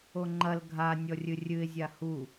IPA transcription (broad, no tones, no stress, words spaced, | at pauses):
oŋ͡ǃɐl ɡʱa nʲɔrʲɨrʲɨɪ̯ zʲahu